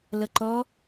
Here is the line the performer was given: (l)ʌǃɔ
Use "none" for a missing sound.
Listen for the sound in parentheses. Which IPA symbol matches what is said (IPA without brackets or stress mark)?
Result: l